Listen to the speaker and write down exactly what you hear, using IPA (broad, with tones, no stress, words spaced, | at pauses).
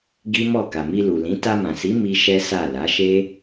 ɡi˦mɔ˦˨ ka˨mi˧lu˨lĩ˨˦ ta˧mã˨si˨˦ mi˦ʃɛ˦sa˦˨ la˨˦ʃe˦